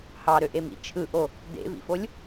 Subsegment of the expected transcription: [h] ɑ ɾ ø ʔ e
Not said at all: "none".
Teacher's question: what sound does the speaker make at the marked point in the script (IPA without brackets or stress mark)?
h